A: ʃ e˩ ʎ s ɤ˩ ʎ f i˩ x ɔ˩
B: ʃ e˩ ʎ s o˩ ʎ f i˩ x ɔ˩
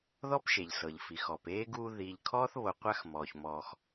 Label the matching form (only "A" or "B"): A